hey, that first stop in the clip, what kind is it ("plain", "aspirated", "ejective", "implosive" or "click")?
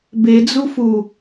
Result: plain